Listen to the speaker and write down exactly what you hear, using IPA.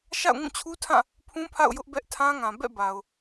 ʃa̰˦˨ʊ̯ŋũ˦˨t͡ɕʰu˦tʰã˦˨ | pʰũ˦pʰa̰˦˨ʊ̯ jʊ˦ʔbɛ˦ʔtʰã˦ŋã˨ bɛ̰˦˨ba˨ʊ̯

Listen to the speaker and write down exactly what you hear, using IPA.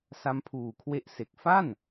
sa˦˥mpʰuː˨˩kʰwe˦˥ʔse˨˩k̚ fa˥˩n

